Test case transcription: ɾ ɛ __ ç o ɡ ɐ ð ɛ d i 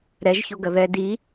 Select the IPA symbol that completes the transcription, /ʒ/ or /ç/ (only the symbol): ʒ